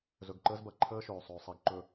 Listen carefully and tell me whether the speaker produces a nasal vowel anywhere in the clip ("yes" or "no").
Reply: no